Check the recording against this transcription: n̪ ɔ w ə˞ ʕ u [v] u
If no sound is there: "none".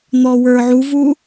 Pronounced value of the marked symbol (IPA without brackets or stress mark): v